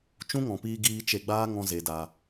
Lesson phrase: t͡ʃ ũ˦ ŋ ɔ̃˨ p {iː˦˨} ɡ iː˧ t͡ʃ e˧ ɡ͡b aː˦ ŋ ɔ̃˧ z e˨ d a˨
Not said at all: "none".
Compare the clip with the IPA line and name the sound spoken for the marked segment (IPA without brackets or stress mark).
iː˧